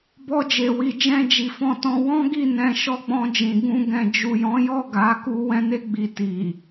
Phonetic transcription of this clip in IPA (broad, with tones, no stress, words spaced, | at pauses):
bɔ˧d͡ʒe˨wi˨d͡ʒɛ̃˧ d͡ʒi˨fɔ̃˧tɔ̃˧ wɔ̃˦ɡi˦˨ nɛ̃˧ʃɔ˦ɡ͡bɔ̃˧d͡ʒĩ˨ ɡũ˧ɡɛ̃˨ d͡ʒu˨jɔ̃˨˦jɔ˦˨ ɡa˨˦ku˧ wɛ̃˧ne˧ ɡ͡bi˨ti˨